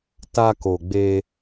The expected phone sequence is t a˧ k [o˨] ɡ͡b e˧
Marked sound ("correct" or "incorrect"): correct